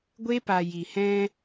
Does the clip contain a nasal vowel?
yes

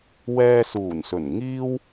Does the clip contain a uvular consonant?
no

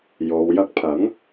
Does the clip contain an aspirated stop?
yes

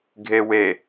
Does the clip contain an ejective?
no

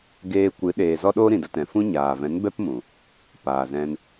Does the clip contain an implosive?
yes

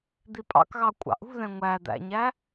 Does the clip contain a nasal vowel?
yes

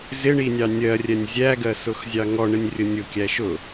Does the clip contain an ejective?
no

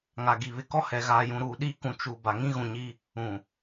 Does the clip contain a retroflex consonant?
no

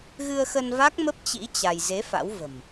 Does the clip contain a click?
no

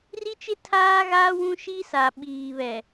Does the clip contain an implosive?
yes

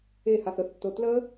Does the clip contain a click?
no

